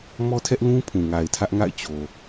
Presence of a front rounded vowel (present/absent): absent